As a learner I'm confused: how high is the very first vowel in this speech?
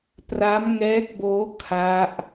low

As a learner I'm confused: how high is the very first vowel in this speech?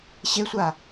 mid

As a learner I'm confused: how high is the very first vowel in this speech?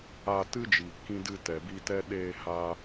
low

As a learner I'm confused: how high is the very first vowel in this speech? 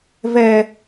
mid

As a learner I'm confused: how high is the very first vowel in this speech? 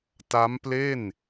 low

